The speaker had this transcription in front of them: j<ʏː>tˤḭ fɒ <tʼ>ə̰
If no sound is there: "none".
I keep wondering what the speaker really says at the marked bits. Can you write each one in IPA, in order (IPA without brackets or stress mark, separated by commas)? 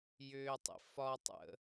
ʏː, tˤ